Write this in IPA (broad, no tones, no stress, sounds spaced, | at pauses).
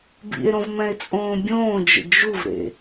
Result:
b ḭ e̯ ɾ õ v m ɛ̃ e̯ t͡sʼ õː bʲ õː d͡ʒ ə̰ d͡ʒ u v ɾ ḛ